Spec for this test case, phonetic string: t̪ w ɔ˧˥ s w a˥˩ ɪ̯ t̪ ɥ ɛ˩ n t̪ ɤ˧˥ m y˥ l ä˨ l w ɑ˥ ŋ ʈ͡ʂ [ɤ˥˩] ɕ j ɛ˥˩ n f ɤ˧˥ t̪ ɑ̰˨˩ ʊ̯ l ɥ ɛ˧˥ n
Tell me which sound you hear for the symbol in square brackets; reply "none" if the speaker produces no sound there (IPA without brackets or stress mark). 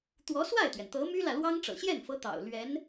ɤ̰˨˩